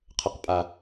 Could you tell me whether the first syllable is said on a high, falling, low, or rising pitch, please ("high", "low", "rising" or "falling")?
low